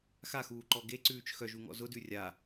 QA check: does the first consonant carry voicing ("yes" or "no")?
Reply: no